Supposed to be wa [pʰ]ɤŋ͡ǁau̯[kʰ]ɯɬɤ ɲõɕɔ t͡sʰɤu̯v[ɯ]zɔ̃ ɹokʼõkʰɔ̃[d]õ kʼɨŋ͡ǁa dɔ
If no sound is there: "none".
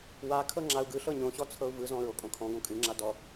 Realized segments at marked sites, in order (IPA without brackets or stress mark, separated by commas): kʰ, ɡ, ɯ, ɡ